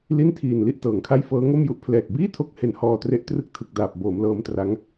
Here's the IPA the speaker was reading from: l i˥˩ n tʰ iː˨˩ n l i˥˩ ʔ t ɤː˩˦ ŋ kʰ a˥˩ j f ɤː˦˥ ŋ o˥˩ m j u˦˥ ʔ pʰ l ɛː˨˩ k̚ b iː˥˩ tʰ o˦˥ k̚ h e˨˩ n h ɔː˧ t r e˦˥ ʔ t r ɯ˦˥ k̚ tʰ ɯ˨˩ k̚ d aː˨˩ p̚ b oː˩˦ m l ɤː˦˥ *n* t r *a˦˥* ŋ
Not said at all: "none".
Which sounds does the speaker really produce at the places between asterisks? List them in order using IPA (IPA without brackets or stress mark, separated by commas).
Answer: m, a˦˥